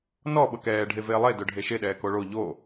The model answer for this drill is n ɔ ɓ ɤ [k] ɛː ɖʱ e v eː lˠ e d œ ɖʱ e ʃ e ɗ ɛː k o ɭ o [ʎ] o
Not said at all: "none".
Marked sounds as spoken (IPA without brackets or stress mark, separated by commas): k, ʎ